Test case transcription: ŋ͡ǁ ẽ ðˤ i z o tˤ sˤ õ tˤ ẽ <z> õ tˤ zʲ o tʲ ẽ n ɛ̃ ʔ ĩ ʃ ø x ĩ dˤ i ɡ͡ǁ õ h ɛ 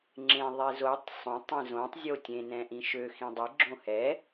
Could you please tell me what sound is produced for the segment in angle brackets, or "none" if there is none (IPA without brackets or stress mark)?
z